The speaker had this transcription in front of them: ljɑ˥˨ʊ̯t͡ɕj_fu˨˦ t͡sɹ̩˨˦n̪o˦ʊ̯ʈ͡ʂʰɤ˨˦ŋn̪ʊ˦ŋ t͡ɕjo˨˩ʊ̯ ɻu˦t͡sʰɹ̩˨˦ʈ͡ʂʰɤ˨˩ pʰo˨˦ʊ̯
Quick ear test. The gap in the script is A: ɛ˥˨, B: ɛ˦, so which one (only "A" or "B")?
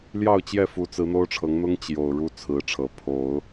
A